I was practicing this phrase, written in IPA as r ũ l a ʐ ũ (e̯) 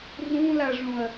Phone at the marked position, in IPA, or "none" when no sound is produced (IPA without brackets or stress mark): ɐ̯